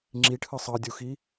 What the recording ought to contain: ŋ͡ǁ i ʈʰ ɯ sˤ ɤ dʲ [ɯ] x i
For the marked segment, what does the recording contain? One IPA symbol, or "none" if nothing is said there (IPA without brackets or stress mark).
u